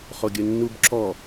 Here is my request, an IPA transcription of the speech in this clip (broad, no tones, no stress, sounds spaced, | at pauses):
χ o ɡʲ ə nː u b ǁ ɔ